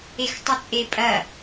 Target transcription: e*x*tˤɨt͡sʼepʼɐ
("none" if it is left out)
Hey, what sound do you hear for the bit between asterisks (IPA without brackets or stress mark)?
x